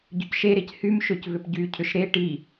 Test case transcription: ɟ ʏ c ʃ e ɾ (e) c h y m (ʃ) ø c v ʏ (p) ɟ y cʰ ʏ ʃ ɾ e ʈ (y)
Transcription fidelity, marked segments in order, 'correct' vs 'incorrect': correct, correct, correct, incorrect

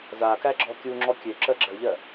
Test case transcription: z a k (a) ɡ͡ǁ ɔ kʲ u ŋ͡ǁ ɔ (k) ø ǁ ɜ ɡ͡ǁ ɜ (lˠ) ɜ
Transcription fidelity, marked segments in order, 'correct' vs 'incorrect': incorrect, incorrect, incorrect

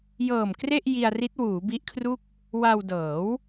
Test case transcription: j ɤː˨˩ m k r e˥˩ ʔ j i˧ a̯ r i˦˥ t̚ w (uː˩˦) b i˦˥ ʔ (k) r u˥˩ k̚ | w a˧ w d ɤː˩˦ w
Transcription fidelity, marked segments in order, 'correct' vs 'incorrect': correct, incorrect

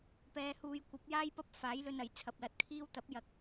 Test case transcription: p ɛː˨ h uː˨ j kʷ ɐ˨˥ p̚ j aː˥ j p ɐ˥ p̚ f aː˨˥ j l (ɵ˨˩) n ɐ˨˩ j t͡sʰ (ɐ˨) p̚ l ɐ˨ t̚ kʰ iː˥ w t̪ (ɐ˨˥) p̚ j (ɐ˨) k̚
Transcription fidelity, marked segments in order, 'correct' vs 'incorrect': incorrect, correct, correct, correct

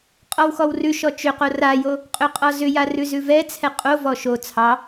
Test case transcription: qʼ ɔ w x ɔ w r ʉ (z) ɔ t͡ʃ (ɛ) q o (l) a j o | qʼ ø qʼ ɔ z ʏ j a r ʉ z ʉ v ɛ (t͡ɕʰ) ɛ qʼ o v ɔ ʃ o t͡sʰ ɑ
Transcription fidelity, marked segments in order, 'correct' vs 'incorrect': incorrect, incorrect, incorrect, incorrect

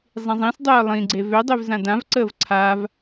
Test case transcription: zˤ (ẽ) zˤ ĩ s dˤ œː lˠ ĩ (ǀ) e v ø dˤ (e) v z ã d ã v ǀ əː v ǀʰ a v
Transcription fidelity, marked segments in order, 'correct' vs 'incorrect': incorrect, incorrect, incorrect

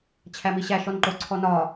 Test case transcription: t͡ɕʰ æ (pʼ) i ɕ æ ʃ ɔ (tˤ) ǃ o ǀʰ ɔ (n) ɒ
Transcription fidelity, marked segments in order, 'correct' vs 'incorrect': incorrect, incorrect, correct

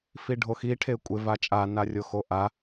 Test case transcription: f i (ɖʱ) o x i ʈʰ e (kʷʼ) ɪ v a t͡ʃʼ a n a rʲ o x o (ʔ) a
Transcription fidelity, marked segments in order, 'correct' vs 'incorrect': correct, correct, correct

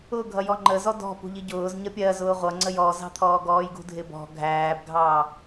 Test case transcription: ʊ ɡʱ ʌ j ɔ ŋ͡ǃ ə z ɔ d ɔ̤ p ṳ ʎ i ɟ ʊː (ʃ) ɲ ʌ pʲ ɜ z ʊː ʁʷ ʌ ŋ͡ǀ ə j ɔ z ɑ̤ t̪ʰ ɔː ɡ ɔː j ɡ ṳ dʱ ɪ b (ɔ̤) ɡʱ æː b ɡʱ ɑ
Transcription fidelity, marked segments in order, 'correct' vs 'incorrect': incorrect, correct

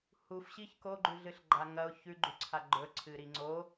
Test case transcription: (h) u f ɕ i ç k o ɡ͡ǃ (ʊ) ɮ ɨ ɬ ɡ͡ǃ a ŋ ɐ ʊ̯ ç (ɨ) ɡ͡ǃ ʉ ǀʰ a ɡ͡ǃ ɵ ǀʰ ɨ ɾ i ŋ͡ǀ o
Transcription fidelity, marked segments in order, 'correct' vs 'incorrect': correct, incorrect, incorrect

